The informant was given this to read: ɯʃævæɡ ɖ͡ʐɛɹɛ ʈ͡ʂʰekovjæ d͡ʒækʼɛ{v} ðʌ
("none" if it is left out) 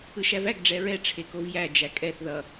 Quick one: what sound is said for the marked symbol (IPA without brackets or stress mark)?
θ